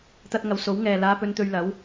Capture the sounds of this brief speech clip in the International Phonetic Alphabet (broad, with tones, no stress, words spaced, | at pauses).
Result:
t̪ɐ˧t̚ŋɐ˨˧w so˨˥w ŋɛː˨laː˧pɵ˧n t̪ɵ˧ɥlɐ˨˥w